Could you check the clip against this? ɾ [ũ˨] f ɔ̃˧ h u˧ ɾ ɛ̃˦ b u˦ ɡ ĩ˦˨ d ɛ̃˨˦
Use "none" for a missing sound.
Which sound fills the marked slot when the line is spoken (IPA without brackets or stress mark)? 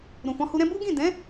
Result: ũ˨